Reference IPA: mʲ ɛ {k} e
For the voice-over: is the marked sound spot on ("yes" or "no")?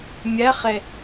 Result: no